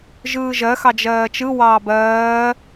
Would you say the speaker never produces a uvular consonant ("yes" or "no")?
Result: yes